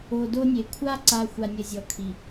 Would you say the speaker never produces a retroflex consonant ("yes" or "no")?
yes